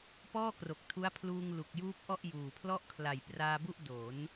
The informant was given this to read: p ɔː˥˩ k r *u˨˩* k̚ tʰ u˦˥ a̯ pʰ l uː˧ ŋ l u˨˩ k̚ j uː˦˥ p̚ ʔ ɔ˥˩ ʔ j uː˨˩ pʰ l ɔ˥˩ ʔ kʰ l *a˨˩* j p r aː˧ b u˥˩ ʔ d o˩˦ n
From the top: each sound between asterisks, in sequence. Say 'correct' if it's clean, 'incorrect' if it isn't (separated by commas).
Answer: incorrect, correct